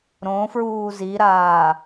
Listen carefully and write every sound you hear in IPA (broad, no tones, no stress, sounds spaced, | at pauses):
ɾ õ f ɹ uː z i ɾ aː